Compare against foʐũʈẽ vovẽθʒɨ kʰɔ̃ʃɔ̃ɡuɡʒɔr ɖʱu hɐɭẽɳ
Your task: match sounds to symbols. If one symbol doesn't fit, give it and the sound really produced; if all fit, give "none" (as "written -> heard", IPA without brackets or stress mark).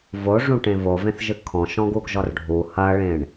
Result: f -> v